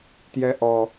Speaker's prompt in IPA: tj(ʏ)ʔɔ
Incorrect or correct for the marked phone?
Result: incorrect: ɛ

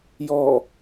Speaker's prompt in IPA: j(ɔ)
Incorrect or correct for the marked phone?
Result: correct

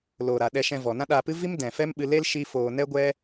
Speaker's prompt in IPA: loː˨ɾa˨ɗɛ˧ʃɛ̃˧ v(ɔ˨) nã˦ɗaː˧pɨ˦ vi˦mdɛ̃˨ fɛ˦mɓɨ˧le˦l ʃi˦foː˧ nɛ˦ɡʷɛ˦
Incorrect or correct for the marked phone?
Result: correct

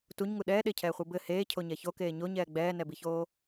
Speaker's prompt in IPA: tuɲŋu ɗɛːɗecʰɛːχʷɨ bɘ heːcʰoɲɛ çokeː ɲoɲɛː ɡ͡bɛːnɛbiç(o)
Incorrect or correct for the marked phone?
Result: incorrect: oː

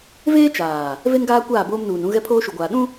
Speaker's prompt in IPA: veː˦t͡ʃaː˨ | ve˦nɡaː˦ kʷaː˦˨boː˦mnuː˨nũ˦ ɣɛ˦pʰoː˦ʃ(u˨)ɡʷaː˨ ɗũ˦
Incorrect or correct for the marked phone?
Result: correct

